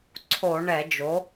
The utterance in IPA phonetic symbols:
ǀʰ o˧˩˧ ɳ ɛ˧˩˧ d͡ʒ o˩˥

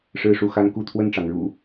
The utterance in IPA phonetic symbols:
ʂ ɻ̩˥˨ ʂ u˥˨ x a˦ n k u˥˨ t̪ʰ w ə˥˨ n ʈ͡ʂ ɑ˩ ŋ ɻ ṵ˨˩

